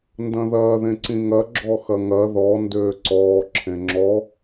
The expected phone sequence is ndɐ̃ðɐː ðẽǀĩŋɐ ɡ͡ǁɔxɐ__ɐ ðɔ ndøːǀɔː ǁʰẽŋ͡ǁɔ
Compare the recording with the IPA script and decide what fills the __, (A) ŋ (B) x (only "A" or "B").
A